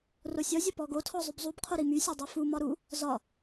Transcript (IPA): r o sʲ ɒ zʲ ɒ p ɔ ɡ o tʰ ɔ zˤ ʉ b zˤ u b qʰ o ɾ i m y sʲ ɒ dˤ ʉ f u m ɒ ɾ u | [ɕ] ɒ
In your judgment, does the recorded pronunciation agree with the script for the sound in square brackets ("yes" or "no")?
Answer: no